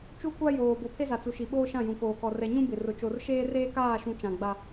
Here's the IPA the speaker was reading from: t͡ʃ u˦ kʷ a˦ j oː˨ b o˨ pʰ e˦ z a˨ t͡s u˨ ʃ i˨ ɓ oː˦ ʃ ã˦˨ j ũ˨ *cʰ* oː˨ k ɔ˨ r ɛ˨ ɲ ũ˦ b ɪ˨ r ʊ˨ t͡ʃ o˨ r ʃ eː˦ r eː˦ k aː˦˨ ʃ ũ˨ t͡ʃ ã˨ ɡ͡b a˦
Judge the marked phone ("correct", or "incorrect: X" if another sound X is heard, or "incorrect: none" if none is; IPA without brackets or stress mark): incorrect: k